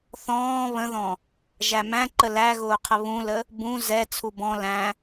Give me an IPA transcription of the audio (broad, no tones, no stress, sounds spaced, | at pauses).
θ ɔ̃ː β ə̃ ð ɔ̃ | ʒ æ m æ̃ ǃ ə l æ ɣ ʊː qʰ ə β ũ l ə | b ũ z ɛ t͡sʰ u b ɔ̃ l æ̃